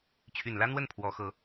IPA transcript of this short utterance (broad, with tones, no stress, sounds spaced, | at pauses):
t͡ɕʰ y˨˩ n l ä˥ n̪ w ə˥˩ n pʰ w ɔ˧˥ x ɤ˧˥